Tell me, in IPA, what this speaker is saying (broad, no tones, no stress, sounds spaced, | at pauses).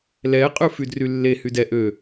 l ɛ qʼ ʉ f y d r y lː e h y d ɛ ʔ ø